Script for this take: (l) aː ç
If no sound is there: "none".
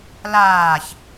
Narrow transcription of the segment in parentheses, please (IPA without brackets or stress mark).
l